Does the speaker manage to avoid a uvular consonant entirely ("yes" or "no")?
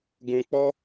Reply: yes